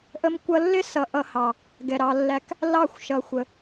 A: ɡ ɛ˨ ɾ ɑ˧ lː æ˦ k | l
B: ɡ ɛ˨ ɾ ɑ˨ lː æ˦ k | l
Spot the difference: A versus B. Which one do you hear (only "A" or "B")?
A